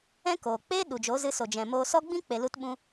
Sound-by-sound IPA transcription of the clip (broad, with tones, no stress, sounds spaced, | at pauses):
ɛ̃˦ k oː˨ k͡p eː˦ ɗ u˨ d͡ʒ o˨˦ z ɨ˧ s o˨ d͡ʒ ɛ̃˨ m oː˧ s ɔ˦ ɡ͡b ĩ˦ k͡p e˧ l u˦ t ɓ ũ˦